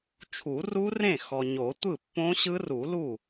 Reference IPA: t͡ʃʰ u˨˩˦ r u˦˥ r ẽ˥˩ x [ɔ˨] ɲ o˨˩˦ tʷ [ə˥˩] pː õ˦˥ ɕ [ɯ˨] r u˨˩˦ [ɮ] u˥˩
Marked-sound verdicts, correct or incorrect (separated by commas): correct, incorrect, incorrect, incorrect